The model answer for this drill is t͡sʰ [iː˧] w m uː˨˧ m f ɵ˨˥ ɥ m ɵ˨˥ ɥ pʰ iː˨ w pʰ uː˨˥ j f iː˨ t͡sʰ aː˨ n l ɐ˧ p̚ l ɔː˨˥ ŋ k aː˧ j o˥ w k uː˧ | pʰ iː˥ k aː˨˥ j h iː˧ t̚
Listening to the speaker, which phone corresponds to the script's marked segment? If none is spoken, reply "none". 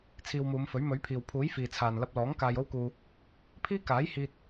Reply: iː˧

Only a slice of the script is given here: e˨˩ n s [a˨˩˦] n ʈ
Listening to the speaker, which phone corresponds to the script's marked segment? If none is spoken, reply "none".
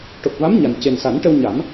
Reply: a˨˩˦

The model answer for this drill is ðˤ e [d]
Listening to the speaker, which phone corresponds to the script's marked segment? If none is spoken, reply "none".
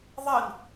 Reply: n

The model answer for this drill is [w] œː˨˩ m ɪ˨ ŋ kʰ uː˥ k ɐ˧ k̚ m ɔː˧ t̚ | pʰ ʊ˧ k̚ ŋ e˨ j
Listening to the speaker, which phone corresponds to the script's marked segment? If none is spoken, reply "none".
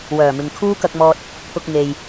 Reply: w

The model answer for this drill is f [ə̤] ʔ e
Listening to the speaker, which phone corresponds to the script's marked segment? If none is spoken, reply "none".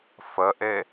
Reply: ə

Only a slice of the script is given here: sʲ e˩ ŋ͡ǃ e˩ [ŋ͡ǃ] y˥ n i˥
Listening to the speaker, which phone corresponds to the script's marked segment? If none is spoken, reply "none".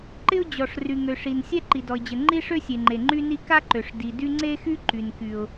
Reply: ŋ͡ǃ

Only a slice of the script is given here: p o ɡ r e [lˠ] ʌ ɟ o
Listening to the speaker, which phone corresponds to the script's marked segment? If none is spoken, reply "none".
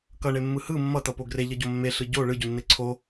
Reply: ʎ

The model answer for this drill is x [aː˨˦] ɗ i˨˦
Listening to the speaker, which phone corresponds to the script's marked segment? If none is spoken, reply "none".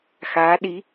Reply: aː˨˦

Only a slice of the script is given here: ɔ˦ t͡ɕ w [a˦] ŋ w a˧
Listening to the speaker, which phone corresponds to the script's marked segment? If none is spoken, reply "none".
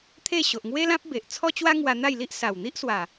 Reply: a˦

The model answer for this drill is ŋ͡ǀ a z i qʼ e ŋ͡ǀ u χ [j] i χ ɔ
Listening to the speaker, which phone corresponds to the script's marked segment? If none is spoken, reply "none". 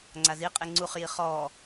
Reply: j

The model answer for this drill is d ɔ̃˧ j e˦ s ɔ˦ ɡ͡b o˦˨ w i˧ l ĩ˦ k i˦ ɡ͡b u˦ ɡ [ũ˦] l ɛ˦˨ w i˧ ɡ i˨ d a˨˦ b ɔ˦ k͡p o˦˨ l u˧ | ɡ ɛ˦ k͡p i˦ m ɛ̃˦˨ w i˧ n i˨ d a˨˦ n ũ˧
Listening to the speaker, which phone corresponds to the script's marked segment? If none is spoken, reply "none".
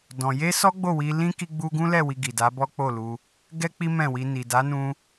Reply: ũ˦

